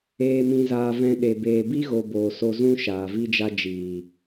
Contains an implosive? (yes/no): yes